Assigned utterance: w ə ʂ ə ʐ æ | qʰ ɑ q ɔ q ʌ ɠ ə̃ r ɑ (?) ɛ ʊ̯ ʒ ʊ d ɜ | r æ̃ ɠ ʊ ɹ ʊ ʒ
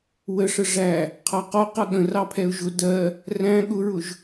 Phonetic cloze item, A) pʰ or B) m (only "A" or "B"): A